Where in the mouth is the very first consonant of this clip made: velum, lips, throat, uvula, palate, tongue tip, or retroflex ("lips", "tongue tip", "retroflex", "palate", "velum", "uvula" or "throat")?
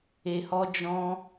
throat